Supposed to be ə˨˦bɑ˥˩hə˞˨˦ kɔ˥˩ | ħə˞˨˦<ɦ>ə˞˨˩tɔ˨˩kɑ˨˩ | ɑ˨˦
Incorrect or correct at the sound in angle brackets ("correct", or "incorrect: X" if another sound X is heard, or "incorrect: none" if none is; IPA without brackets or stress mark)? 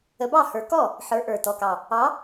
incorrect: ʔ